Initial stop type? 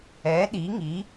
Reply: implosive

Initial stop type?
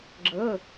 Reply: click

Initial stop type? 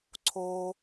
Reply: click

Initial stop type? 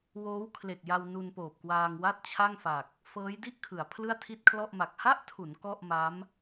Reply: aspirated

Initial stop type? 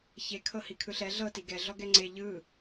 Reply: aspirated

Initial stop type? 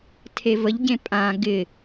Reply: aspirated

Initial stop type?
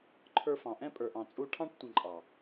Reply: click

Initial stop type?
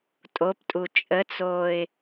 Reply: ejective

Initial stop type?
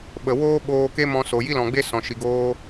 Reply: implosive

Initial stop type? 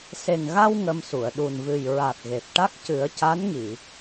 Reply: implosive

